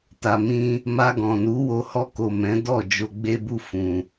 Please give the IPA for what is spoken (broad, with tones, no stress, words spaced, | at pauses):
ta˨mĩ˧ | ma˧ ɡɔ̃˨ nu˨˦wo˧ hɔ˧ko˨ mɛ̃˨˦dɔ˦˨ d͡ʒo˨ɡ͡be˧bu˧ fũ˨